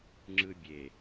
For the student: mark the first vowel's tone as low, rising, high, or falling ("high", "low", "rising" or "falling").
high